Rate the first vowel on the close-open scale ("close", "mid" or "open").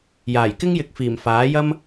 open